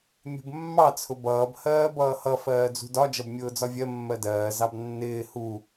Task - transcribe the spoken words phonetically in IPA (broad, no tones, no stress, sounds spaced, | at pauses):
mʲ ṳ b mː ɑ t͡sʰ ʊ b ʌː b h ɜː b ʌː h ʌ f ɜː d͡z ṳ d ɒ d͡ʒ ʌ b mʲ ʊː d͡z ɒ vʲ ɜ mː ɜ d ɜː z ɑ b nː ɪː h u